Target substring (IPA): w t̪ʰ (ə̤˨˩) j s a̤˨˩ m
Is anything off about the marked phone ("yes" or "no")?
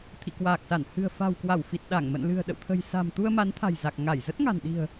no